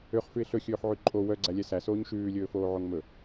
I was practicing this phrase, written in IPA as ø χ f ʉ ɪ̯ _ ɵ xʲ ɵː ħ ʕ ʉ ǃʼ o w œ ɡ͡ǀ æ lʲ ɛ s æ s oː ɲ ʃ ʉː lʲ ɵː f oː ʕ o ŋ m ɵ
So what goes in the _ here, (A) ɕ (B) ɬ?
B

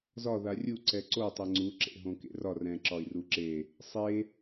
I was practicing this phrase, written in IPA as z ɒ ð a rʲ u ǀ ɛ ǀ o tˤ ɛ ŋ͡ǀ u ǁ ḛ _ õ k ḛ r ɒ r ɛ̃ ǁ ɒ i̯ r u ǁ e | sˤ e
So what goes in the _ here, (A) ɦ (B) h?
A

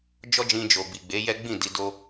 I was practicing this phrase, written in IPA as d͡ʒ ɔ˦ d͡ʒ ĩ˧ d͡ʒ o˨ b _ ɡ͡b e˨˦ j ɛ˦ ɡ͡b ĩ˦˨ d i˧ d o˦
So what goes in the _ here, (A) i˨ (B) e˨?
A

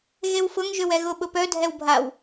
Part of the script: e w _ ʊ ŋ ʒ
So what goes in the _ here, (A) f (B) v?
A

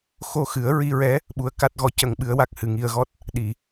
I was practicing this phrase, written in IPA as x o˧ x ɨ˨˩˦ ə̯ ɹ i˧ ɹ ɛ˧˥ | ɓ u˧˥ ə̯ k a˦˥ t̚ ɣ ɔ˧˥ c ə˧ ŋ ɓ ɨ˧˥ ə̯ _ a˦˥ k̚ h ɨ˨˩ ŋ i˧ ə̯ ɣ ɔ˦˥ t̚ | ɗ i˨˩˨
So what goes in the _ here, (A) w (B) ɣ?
A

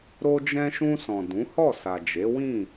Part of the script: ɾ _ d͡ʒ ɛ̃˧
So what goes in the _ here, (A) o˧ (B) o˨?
A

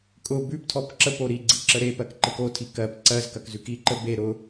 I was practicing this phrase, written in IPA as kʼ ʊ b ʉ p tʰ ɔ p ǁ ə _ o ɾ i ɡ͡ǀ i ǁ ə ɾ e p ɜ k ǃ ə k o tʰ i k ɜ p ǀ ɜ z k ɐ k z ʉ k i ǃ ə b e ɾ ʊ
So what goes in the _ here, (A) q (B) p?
B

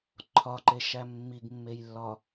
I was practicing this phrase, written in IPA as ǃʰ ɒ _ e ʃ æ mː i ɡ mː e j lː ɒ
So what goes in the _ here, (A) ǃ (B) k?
A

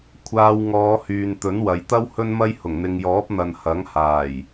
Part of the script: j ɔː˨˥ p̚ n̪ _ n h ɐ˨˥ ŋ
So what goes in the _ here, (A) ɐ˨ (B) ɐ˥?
A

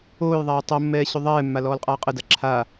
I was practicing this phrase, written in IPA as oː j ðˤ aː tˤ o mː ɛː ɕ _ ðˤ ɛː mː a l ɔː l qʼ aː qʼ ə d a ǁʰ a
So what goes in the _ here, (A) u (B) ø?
B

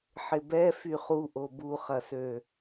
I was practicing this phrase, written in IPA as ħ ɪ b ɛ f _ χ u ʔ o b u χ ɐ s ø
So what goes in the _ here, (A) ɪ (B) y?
B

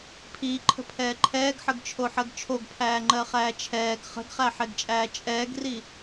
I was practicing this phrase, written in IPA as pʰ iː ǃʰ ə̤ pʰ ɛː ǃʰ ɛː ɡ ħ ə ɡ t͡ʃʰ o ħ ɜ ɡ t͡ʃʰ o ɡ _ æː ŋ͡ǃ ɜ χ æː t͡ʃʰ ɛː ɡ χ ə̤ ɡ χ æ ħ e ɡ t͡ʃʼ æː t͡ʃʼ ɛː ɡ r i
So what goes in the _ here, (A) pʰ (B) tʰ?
A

